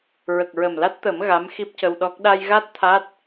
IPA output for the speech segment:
ɹ ə˨˩ k̚ ɹ ə˨˩ m l a˦˥ t̚ t̪ əː˨˩˦ m ɣ a˧˥ m x i˦˥ p̚ c ə˧ w ɗ ɔ˦˥ k̚ ɗ a˧ j ɣ a˦˥ t̚ t̪ʰ a˦˥ t̚

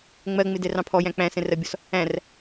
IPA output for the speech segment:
ŋ͡m ɜ ŋ͡m ɪ d ɛ r ɑ̃ pʰ ɔ j æ̃ k͡p æ̃ s ɛ̃ r ɜ bʲ ɔ s | æ̃ r

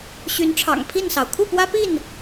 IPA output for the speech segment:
ɕ y˨˦ n ʈ͡ʂʰ ɑ̰˨˩ ŋ pʰ i˥˨ n s ɑ˩ ʊ̯ kʰ u˥˨ p w ä˦ p i˥˨ n

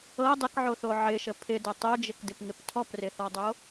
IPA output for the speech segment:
ɤ dˤ ɪ k ʕ o θ o ʕ ɪ ʃ ə pʰ ɪ d ə tˤ o d͡ʒ ɪ k d ɪ p ŋ ɪ p tʰ ɔ p r ɪ θ ɔ dˤ o

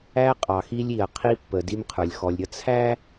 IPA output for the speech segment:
æ˦ qʼ ɑ˨ x i˦ lʲ i˨ ɐ̯ qʰ i˦ pː ə˨ d i˦ m qʰ ə˞˨ lʲ x ɔ˨ lʲ ɾʲ ʌ˦ t͡sʰ æ˦

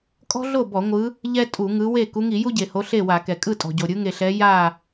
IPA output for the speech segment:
kʼ ɔ̤˥ ɮ o˥˨ b ɔ˧˩˧ ŋʷ ɯ˨˦ | ʎ ɛ˥ tʼ u˧˩˧ ŋ ɯ˨˦ w e˥˨ k u˨˦ ŋ i˧˩˧ j u˥ ɟ e˩ h o˨˦ ɬ e˥˨ w a˧˩˧ k ɛ˩ kʼ ɯ˥˨ tʼ ɔ̤˩ ɟ o˩ ɾʲ ɯ˨˦ ŋ e˩ ɬ ɛ˨˦ j a˥˨

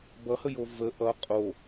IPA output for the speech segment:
b ʌ h ə j o v ə ʔ ʌ qʼ o

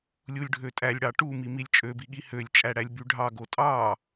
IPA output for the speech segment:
lʲ u lʲ ɖʱ ø tʼ æ lʲ ɽ ɑ ʈ u m i m i lʲ t͡ʃʼ ø b i ɠ i h ø lʲ t͡ʃʼ æ ɽ æ lʲ b y ɖʱ ɑ ɡ o tʼ ɑ

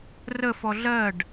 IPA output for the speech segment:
r ə f ɔ ɮ ɜ ɖ

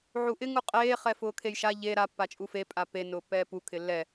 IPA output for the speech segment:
ʕ u ʔ ɪ ŋ u qʼ eː χ ɛ f ʊː kʰ e j ʃ a ʎ e ɾ a pː a t͡ʃʼ u f e pʼ a p e n ʊː pː ɛː p u kʰ ɪ lː ɛ

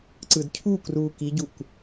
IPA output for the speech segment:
ǀ ɯ d cʰ u k r uː k i ɟ u k

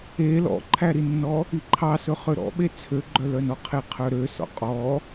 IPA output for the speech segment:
e l ɔ̰ ǃʰ æ ɾ i nː ɔ | i ǃʰ ɑ s ɵ χ ø ɾ ɔ̰ ɓ e t͡sʰ ø ɡ͡ǃ œ l œ n ɔ qʰ e qʰ œ ɾ ø s ɔ̰ qʼ ɔ

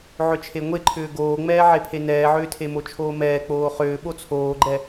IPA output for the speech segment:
ʕ ʏ t͡ʃʰ e ŋʷ e ǃʰ ʏː ɡ oː ŋ͡m ɛː ʕ e pʰ e n ɛː ʕ ʏː tʰ e m o t͡ʃʰ oː m ɛː k͡p oː χ ʏː ɓ o t͡sʰ oː ɡ͡ǃ ɛ

